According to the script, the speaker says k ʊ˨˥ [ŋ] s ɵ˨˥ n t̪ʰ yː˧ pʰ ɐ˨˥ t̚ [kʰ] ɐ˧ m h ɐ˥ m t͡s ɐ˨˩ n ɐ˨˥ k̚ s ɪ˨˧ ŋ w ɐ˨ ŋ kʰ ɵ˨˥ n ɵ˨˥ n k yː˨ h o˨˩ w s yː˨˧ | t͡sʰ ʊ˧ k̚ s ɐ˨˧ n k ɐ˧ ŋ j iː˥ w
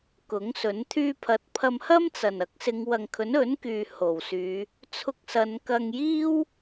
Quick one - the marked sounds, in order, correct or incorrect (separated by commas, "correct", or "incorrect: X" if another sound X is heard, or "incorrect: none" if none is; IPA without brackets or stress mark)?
correct, incorrect: pʰ